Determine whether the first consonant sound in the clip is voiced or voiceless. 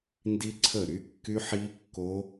voiced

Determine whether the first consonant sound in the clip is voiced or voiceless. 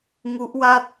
voiced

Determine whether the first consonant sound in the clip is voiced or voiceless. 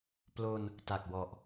voiceless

